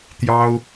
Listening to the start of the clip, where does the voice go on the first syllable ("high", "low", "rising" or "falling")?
high